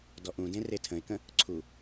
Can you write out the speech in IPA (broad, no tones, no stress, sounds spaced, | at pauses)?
d ɔ ʔ ũ d ẽ r e tʰ ə̃ ɪ̯ k ə̃ | ǀʰ u